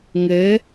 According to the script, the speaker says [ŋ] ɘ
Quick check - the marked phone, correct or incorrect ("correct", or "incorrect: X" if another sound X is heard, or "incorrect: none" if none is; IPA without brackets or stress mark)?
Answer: correct